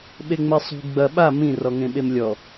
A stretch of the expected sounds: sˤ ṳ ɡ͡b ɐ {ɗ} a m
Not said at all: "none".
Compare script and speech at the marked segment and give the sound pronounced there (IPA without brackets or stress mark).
ɓ